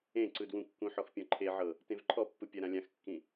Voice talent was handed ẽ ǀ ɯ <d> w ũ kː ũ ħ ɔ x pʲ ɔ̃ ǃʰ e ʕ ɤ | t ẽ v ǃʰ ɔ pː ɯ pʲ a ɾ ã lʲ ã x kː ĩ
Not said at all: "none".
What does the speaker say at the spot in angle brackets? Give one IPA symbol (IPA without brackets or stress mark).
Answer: d